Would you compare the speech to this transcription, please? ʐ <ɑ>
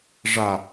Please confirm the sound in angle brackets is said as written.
no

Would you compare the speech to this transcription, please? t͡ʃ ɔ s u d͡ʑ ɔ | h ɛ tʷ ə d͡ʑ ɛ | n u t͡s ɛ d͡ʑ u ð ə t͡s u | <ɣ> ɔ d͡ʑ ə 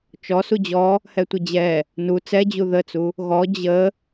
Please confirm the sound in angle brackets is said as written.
yes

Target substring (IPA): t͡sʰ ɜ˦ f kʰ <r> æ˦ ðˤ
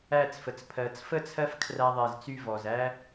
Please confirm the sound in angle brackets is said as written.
yes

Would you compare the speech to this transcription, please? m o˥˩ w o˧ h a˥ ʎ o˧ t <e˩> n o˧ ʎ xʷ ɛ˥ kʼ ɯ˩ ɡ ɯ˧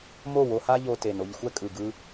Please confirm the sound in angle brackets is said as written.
yes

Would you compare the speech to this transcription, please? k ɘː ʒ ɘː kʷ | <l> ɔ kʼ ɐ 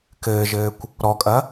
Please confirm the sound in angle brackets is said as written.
no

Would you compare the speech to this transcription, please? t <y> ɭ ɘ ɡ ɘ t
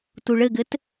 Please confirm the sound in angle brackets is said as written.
no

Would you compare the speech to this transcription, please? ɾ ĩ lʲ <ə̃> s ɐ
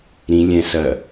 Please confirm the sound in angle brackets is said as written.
no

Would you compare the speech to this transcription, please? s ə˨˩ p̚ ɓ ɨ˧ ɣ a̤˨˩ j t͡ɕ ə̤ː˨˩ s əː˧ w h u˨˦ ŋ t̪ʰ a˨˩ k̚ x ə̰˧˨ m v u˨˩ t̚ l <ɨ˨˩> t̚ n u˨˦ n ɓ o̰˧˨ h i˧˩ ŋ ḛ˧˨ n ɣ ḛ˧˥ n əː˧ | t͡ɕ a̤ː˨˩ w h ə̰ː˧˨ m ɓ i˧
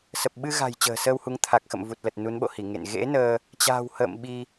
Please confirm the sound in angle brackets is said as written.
no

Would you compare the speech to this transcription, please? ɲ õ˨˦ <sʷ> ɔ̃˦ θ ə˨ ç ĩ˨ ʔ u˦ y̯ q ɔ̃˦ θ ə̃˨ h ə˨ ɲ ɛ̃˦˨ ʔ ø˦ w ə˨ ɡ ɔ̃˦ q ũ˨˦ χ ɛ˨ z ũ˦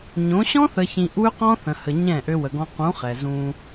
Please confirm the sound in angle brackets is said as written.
no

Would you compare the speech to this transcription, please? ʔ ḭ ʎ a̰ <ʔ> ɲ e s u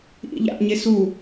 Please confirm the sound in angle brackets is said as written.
yes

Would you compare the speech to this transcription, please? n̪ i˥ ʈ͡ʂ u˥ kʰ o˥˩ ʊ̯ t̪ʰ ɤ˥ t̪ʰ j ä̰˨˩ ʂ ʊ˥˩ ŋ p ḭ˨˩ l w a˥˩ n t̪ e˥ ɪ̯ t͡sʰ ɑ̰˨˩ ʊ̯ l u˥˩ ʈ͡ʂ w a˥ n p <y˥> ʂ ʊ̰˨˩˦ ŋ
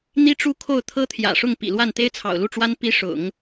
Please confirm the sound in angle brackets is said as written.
no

